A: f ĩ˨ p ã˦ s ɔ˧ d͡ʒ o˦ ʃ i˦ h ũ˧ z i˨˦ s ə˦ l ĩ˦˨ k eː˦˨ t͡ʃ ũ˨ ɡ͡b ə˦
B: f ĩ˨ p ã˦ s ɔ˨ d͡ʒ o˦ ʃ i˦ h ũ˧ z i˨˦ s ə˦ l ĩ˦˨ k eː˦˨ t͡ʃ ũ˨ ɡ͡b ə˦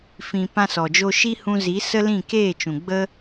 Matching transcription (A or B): B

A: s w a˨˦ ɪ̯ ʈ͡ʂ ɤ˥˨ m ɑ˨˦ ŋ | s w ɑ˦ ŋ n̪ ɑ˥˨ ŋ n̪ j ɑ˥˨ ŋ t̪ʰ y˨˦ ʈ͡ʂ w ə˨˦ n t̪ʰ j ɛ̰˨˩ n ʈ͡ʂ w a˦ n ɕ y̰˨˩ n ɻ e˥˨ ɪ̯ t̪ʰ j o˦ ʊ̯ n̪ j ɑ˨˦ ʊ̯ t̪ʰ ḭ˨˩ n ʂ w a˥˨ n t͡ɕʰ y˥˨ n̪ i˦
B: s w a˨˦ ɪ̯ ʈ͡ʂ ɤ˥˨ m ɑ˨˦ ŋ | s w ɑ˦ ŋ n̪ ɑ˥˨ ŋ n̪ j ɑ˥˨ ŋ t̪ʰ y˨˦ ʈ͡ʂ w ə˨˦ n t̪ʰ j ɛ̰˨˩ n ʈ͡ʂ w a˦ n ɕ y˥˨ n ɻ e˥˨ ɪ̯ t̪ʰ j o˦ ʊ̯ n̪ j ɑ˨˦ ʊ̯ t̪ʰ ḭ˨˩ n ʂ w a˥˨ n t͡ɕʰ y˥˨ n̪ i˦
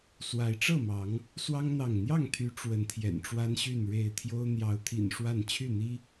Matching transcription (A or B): B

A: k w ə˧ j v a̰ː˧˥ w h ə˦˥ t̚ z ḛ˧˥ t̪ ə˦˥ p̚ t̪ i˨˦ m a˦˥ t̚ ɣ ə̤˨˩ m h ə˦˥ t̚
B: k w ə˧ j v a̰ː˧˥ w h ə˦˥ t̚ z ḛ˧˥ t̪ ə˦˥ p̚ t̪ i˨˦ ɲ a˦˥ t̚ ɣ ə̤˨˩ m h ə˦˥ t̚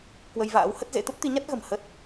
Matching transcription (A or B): B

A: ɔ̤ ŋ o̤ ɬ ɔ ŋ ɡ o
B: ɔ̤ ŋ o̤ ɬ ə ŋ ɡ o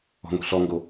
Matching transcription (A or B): A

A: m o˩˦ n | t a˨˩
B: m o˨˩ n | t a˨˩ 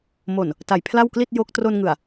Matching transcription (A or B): B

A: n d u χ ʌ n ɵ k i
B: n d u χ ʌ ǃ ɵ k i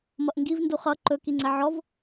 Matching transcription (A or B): B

